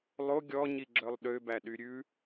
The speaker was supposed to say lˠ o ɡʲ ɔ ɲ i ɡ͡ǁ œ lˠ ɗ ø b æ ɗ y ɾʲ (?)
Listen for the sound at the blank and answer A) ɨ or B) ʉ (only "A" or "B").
B